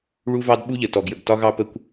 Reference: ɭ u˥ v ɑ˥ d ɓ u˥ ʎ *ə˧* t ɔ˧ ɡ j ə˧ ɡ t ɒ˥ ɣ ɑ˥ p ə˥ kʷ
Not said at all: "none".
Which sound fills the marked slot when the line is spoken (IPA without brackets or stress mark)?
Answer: ə˧